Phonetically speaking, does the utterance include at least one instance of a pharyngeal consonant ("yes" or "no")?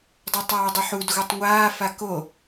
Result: yes